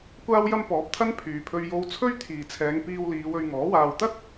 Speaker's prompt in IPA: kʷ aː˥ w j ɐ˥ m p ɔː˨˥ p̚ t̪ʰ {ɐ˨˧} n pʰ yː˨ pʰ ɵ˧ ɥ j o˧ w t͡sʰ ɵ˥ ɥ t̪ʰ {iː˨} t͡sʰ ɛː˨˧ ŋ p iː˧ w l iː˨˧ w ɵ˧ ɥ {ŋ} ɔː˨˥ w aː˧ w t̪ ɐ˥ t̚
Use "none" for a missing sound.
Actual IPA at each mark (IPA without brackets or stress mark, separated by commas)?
ɐ˥, iː˨, ŋ